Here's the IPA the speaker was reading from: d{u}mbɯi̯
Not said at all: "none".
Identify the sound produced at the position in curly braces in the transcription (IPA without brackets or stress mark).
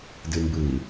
ɯ